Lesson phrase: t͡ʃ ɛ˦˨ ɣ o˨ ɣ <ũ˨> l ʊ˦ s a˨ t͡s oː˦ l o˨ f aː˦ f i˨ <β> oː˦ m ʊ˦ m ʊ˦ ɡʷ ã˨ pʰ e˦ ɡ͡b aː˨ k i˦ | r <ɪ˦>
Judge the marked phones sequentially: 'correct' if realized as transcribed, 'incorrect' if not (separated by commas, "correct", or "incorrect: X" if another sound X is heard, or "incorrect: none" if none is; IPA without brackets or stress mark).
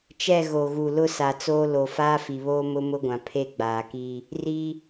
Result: incorrect: u˨, correct, incorrect: i˦